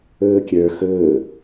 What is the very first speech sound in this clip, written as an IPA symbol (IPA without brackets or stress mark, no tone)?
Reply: ɵː